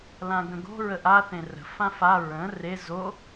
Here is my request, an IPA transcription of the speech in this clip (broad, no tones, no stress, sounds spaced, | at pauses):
l ã ɡ ə̃ ɡ o̤ ɹ ə ʔ a θ ẽ r ə̤ f ã f a ɹ ə̃ r e z o